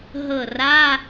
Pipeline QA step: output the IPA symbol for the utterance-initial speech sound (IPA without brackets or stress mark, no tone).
ɦ